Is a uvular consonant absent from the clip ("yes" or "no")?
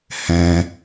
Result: yes